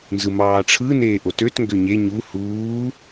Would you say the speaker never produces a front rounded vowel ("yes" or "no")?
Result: no